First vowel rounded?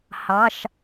no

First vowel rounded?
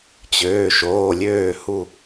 yes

